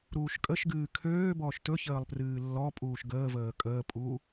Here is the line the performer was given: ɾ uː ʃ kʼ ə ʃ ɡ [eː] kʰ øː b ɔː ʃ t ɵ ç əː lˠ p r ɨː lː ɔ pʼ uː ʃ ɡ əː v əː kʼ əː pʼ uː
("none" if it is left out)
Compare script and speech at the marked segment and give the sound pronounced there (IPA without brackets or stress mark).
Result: ɨː